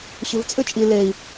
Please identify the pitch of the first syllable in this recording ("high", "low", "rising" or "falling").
low